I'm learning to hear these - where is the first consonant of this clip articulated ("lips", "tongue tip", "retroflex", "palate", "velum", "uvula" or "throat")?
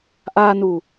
throat